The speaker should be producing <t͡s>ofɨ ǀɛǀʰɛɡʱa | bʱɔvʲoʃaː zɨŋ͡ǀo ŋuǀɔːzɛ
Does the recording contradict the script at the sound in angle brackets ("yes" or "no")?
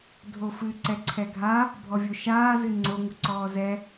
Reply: yes